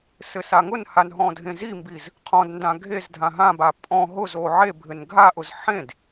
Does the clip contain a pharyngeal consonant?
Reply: yes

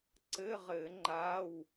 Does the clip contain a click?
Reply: yes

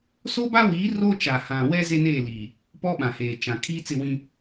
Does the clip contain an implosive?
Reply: yes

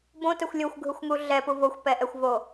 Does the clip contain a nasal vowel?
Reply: yes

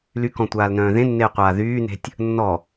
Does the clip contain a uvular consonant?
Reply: yes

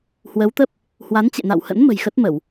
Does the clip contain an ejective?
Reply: no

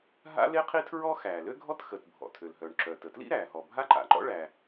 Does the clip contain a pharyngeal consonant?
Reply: no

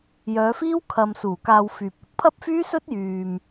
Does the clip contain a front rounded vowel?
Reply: yes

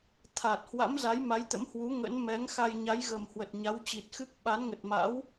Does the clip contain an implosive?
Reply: yes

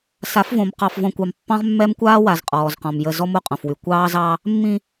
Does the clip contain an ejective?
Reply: yes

